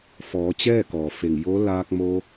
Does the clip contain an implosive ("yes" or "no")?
no